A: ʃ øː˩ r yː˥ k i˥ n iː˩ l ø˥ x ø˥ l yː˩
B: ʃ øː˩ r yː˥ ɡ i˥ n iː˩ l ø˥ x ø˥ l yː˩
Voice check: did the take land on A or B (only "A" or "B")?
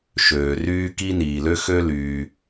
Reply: A